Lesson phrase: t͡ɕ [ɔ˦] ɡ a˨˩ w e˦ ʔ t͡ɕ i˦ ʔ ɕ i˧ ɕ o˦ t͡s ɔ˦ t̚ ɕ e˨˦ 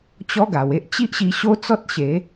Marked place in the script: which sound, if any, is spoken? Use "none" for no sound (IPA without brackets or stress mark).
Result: ɔ˦